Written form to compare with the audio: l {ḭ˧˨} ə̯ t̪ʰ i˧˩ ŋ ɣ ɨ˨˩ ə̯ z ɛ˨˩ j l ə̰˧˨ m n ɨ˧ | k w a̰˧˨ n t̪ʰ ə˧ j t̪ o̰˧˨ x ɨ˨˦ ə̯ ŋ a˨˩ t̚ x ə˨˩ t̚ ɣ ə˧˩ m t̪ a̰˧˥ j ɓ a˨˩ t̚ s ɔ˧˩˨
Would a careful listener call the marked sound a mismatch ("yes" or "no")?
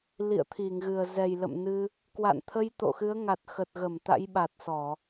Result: no